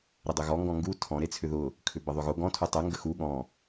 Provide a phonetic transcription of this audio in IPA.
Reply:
ɾ ɪ dˤ ʏ ɣ ɔ ŋ ɡ ɔ̃ ŋ ɡ u tʰ ɔ̃ ɾ e t͡sʰ ʏ ð ʊ | kʰ ʏ b ə ðˤ ʏ ɣ ʊ ɡ ɔ̃ tʰ u tˤ ʊ ŋ ɡ ə x u ɠ ɔ̃

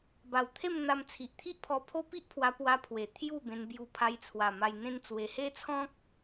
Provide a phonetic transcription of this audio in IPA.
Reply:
b a˨˩ w t̪ʰ e˥˧ m n̪ a˧ m t͡sʰ i˨ ʔ t̪ʰ i˦ ʔ pʰ ɔ˧ pʰ o˦ p i˦ ʔ pʰ w a˧ p w a˧ pʰ w e˨˩ t̪ʰ j u˥˧ b ẽ˧ n b j u˧ pʰ a˧ j t͡sʰ w a˨˩ m a˧ j n̪ ẽ˦ n t͡s w e˧ h e˦ t͡sʰ ɔ̃˦ k̚

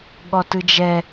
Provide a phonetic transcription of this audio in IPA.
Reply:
ɠ ɔ t ɯ d͡ʒ ɛ

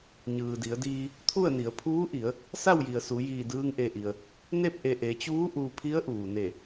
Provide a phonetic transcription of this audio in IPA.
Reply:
ɲ ɯː˩ d i˩˧ ə̯ d iː˧ | t̪ʰ u˥˨ ə̯ n i˩˧ ə̯ pʰ uː˧˥ ʔ i˩˧ ə̯ | s a˥˨ w j i˩ ə̯ s u˩˧ j iː˧˩ d ɯː˧ ŋ ʔ e˧˩ ʔ i˩ ə̯ | n e˥˨ p̚ ʔ e˧˩ ʔ e˩˧ t͡ɕ uː˧˥ ʔ u˧ pʰ i˧˥ ə̯ ʔ uː˩ n e˧˩

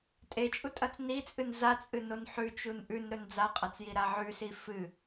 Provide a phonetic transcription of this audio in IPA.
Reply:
tʼ e t͡ʃʼ u tʼ ɐ t͡s n i t͡sʼ ɨ n z a t͡sʼ ɨ n o n ħ ʉ t͡ʃ u n ʔ ʉ n ɾ ɵ n d͡z a qʼ a t͡s j i ɾ a ʕ ʉ s i f ɨ

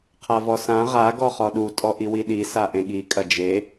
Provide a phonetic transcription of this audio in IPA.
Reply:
qʰ a v ɔ s ã ʁ a ɡ ɔ χ ɔ ɗ u tʼ ɔ ʔ i w i ɗ i s a ʔ ẽ ɠ i kʼ ɐ d͡ʒ e

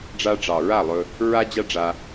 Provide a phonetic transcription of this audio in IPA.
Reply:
ɖ͡ʐ a˧ ɖ͡ʐ ɑ˨ ɹ a˦˨ lˠ ɵ˧ | ɹ a˦ d͡ʑ a˦ ɖ͡ʐ a˧

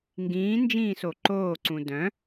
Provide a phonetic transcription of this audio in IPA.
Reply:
ŋ ɡ ĩː n d͡ʒ ĩː s o ǃ oː ǀ ũ d œ̃

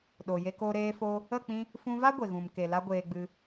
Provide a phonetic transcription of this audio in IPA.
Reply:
ɗ o˨ j e˧ k o˧ ɾ eː˧ f o˧ | ə˦˨ k͡p ĩ˧ | f ũ˧ v a˦ ɡʷ e˨ ɣ ũ˨ m k e˨ l a˧ ɡʷ eː˧ ɡ͡b ɨ˧

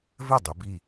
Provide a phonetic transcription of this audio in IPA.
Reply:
v ɘ˥˩ dˤ o˩˧ b i˥˩

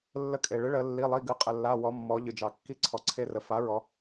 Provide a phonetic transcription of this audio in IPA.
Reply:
lː ə˧ kʼ e˩ ɭ ɨ˩˥ ɭ ə˩˧ lː i˩˧˩ lˠ i˩˧˩ ɡ ɨ˩˥ qʼ ə˩ lː a˩˧˩ w ɔ˩˧ mː ɔ˩˧ ʎ ɨ˩ d͡ʒ ɑ˩ kː i˧ ǀʰ ɔ˩ ǀʰ e˧ r ə˩˧ f a˩˥ ɹ ɔ˩˧

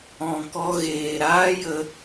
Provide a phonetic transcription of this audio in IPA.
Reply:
ɔ̃˨ k ɔ˧ ɣ eː˨ ɾ aː˦ j ə˧

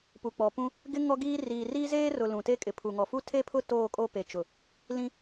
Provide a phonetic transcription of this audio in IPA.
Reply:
p u˨ k͡p ɔ˨ p ũ˦ | ɡ ɪ˦ ŋ ɔ˦ ɡ iː˦ r iː˨ r iː˦ z eː˦ r ʊ˨ l ũ˨ t e˦ kʼ ɪ˨ pʰ u˨ ŋ ɔ˨ f u˦ tʰ e˦ pʰ ʊ˦ t oː˦˨ kʼ o˦ p e˨ t͡ʃ ʊ˨ | l ĩ˦

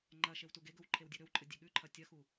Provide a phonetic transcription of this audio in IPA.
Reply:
ŋ͡ǃ ɐ ʃ e w t u ɡ e ɡ ɵ w ǃʰ e w dʲ ɨ ɾ ɵ w ǃʼ ɨ dʲ e ɠ ʉ ǃʰ ɐ tʲ ɐ x u

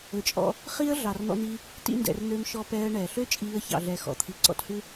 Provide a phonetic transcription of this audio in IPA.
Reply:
ɵ˨ t͡ʃʼ ɔ̰˧ | χ i˦ ə̯ ɮ ɑ˨ r n̪ ɔ̰˧ n̪ iː˧ | t ḭ˧ n d ɛ̰˨ r n̪ øː˧ m ʃ ɔ˧ p ɛː˧ ə̯ ɳ ɛː˨ ɬ ø˦ t͡ʃʼ iː˧ ə̯ ç ɑ̰˨ ɮ ɛ˨ x ɔ̰˨ t̪ʰ i˨ ǀ ɔ̰˧ t h ʉ˦

